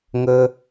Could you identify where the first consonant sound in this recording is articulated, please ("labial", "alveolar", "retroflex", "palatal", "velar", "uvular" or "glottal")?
velar